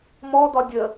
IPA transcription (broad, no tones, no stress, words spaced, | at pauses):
mɔdɒ dʲə